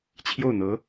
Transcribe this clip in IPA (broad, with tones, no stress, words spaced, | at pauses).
t͡ɕʰjo˥˩ʊ̯n̪ɤ˧˥